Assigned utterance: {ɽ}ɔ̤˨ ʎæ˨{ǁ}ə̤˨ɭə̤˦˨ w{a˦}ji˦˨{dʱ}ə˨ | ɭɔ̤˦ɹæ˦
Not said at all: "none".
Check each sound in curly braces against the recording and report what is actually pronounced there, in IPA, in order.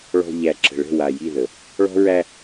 ɭ, ǁ, a˨, ð

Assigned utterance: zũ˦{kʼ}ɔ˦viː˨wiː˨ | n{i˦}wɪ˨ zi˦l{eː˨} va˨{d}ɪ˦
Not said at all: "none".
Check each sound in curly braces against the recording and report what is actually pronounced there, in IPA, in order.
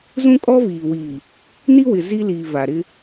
kʼ, i˦, iː˨, ɾ

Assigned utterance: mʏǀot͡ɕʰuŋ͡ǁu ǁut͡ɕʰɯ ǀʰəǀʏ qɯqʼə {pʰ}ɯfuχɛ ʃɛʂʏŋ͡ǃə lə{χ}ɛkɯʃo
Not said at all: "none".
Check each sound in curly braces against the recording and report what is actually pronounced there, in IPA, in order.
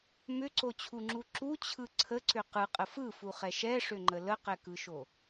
f, q

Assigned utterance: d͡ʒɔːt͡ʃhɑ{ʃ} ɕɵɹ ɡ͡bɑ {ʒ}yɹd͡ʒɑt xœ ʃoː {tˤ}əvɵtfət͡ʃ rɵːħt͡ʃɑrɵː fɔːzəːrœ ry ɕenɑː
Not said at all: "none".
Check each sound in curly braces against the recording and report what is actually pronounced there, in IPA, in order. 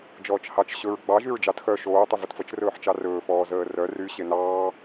t͡ʃ, ʒ, tˤ

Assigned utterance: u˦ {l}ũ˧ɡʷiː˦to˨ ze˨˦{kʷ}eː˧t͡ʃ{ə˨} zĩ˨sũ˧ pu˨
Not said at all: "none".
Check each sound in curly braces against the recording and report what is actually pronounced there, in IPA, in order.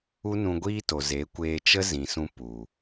n, kʷ, ə˦

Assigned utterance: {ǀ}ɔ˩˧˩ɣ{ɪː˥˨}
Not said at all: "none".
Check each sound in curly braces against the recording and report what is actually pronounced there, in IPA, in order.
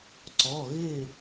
ǀ, ɪː˥˨

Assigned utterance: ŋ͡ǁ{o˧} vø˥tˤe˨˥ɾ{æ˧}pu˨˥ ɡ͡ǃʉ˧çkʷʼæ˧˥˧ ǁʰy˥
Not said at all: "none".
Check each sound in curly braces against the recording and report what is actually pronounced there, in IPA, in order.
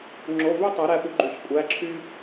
o˧˥˧, æ˧

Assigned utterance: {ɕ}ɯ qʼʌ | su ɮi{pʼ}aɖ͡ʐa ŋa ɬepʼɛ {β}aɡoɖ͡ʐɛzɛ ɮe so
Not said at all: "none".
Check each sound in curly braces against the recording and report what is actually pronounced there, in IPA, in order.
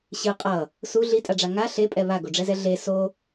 ɕ, tʼ, β

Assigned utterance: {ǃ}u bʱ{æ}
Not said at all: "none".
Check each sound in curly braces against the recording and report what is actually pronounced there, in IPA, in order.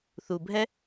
θ, ɛ

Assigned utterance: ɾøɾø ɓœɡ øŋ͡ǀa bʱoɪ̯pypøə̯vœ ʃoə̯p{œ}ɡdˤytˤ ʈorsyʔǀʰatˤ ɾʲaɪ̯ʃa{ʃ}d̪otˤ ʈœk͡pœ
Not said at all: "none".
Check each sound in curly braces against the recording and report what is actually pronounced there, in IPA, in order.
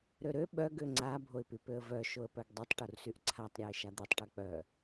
œ, none

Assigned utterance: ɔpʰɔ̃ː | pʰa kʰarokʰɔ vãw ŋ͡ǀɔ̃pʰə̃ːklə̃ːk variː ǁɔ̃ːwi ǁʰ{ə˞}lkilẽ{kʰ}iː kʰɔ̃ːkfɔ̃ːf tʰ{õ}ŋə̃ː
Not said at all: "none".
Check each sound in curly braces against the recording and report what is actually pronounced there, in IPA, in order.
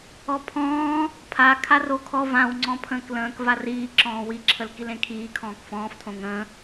ə, kʰ, õ

